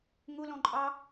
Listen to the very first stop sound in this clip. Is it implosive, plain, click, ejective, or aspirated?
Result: click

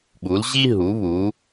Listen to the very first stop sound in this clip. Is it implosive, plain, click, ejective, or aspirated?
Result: implosive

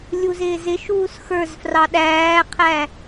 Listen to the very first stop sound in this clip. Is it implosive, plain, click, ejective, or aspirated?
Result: implosive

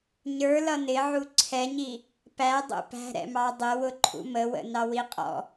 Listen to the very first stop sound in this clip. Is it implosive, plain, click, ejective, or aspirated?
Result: click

